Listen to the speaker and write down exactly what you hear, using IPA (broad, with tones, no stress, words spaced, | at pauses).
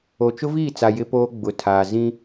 o˨t͡ʃʊ˦viː˦˨t͡sa˨ jɪ˦poː˦ɡ͡bʊ˨˦tʰaː˨ zĩ˦